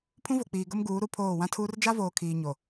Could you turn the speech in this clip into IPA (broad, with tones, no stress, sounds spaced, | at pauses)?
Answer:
pʰ ũ˦ v o˨ k͡p iː˨ ɡ ʊ˦ m ɡ uː˨˦ ɾ u˦ pʰ oː˦˨ w ã˦ tʰ uː˦ r d͡ʒ a˦ v oː˨ kʰ iː˨ ɲ o˨